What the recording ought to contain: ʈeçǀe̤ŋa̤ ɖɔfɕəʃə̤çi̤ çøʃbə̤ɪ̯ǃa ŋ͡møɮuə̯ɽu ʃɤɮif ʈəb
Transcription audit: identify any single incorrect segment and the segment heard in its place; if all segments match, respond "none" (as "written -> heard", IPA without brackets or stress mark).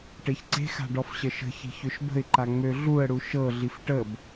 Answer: ŋ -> x